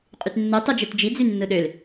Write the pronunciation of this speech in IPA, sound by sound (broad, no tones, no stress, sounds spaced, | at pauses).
qʼ y t nː ɯ tˤ ɯ d͡ʒ e t d͡ʒ i d͡z y nː ɯ ɗ ø l